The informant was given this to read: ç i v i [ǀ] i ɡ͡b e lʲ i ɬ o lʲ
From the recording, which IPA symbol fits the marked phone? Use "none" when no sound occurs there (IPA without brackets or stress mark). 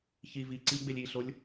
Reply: ǀ